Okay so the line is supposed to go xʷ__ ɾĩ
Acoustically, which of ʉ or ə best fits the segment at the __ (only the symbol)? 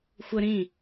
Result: ə